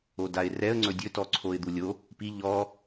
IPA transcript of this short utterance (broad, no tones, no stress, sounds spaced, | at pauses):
o d a ɪ̯ r ɛ ə̯ ŋ͡ǀ ɵ dʲ ɵ t ɔ ǀʰ o ɪ̯ d̪ u lʲ o | p i ʎ ɔ